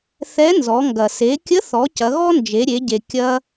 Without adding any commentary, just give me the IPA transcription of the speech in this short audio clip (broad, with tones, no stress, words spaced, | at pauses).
θɛ˧˥nzɔ˩˧ŋɡɐ˩ se˩˧kʲə˧˥θɔ˩˧ cɐ˩˧ɣɔ˥nd͡ʒe˩˧ɾʲe˩˧ ɟe˩ kʲɐ˧